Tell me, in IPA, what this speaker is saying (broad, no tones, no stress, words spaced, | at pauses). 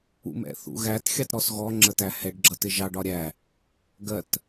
ṵmɛ̰θṵɣæt xʲɑtɾɔsɣɔ ŋ͡ǁətæhɛɖ ɡ͡ǁʌtɪʒɑɖ ɒɾʲæ | ɡɜt